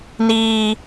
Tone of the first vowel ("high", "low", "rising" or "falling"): high